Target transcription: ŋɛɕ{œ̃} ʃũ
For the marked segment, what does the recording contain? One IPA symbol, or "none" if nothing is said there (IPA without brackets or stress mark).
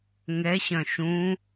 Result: œ̃